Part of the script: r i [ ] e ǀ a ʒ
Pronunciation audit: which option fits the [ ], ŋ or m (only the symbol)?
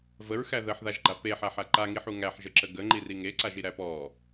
ŋ